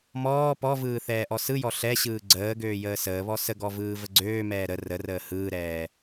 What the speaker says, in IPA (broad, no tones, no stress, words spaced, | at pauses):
mɔː pɔvɯː θɛːʔɔsɯjɔ ɬɛɕɯː ɡ͡ǀəː ɡøːjəːsəːβɔ səɡɔ vɯːvəɡ͡ǀøːmɛː ɾə rərəː hɯːɾɛː